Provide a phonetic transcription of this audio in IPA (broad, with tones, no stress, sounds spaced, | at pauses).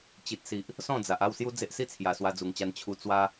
t͡ɕ i˨ t̚ s i˨ ʔ | s ɔ̃˥˧ d͡z a˨ ʔ a˥˧ w s j u˦ d͡z e˦ ʔ s i˦ t͡sʰ j a˨˩ s w a˧ d͡z u˨˩ ŋ t͡ɕ a˧ n t͡ɕʰ u˧ t͡s w a˧